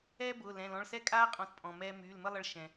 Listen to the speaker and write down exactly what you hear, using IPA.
ɛː˧ b ʊː˩˧˩ l ɛ̃˩˧˩ l ɔ̃˩˧˩ ɭ s ɛ˦˥ kʼ aː˦˥ qʼ ɔ̃˩˧˩ t pʼ ɔ̃˩ m ɛː˧ m yː˩˧˩ l m ə˥˧ lˠ ʌ˧ ɭ ʃ ɛ̃˩

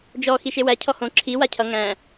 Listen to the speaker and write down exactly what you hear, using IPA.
d͡ʒ ɔ x i ʃ e w æ cʰ ɔ h õ ǁʰ i w a cʰ ʌ ŋ æ̃

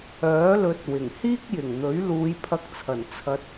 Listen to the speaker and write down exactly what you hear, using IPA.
œː˨˥ l ɵ˨˥ t̚ w ɪ˨˩ ŋ h iː˥ k̚ j ɪ˨˩ ŋ n̪ ɵ˨˥ ɥ l uː˨˧ j pʰ ɐ˧ k̚ t͡sʰ ɐ˨˩ n t͡sʰ ɐ˧ t̚

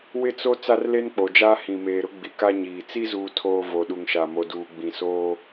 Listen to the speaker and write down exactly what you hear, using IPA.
w ɪ˦ t͡s o˦ t͡s a˦ r l e˦ n k͡p o˨ d͡ʒ aː˦ h ĩ˨ m eː˨ ɾ ʊ˦ ɡ͡b i˨ k a˦ ɲ iː˨ t͡s i˦ z uː˨ tʰ oː˨ v o˨ ɗ u˨ ŋ ʃ a˨ m o˨ d uː˨ ɡ͡b ĩ˨ s oː˦

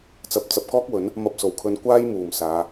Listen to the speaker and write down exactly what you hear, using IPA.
t͡s ɐ˨˥ p̚ t͡s ɐ˨ p̚ k ɔː˥ k̚ w ɵ˨˥ n | m ɐ˧ p̚ s o˨˩ w kʰ ɵ˧ n kʷ aː˥ j m uː˨˩ m s aː˨˧

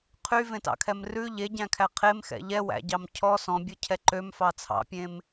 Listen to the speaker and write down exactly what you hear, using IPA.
qʰ y v ẽ t ɑ̰ kʰ ɛ m r ʉ ʎ e ɟ æ̃ kʰ æ qʰ e m x ɛ̰ ʎ ɛ w æ̰ ɟ ɑ m cʰ ɔ s ɔ̃ bʲ ɔ cʰ ɛ ǃ ø m f ɑ t͡sʰ ɑ̰ pʲ ẽ m

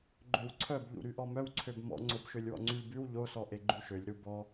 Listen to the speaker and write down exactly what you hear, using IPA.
ɡ͡ǃ ø w ǀʰ œ b ʎ ṵ ɾ y ʔ ɔ m œ w ǀʰ ø b m ɔ̰ ŋ͡ǀ o b ʃ ø lʲ w ɔ̰ ŋ͡ǀ y lʲ b ʉ w ʎ o s ɔ ʔ e ɡ͡ǃ ʉ ʃ ø lʲ ɾ u b ɔ

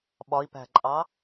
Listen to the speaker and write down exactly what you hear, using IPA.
ɓ ɒ i̯ p æ̤ ǃʼ ɑ

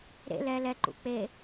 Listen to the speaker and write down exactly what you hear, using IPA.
ɾ ḛ l ɛ l ɛ ǃ ṵ k͡p e

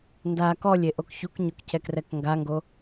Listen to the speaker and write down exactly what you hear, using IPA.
n d a k ɔ lʲ e ʔ o k ç u k ɲ o k c ɛ k r ɛ k ŋ ɡ a ŋ ɡ o

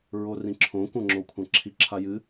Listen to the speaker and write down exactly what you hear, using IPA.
ɹ o r ĩ ǁʰ õ kʷ ɐ̃ ŋ͡ǁ o kʷʰ ã ǁʰ i ǁʰ a j ɨ

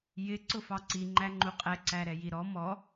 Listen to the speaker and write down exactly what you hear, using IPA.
j ɪ ǀ ʊ f ɑ ǀ i ŋ͡ǃ æ ŋ͡ǃ u qʼ ɛ ǀ æ ɾ ɛ j i ɾ ɔ m ɔ

